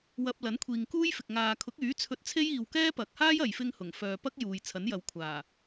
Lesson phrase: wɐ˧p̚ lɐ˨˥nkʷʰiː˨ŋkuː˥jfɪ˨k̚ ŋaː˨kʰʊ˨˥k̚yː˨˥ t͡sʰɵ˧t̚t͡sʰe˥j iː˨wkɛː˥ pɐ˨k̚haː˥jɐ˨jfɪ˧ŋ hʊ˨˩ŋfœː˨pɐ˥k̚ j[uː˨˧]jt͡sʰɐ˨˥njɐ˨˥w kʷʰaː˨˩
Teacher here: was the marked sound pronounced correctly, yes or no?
no